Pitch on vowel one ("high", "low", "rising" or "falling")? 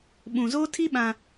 low